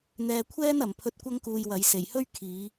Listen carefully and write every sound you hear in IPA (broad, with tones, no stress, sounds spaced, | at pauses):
n̪ ɛː˧ kʷʰ ɛː˥ n ɐ˨ m pʰ ɵ˧ t̚ kʷ ɐ˥ ŋ k uː˧ j w ɐ˨˧ j s e˨˩ j h ɵ˥ ɥ kʰ iː˨˧